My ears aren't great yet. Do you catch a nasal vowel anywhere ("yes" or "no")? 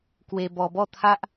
no